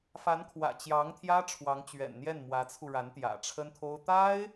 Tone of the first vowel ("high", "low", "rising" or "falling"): rising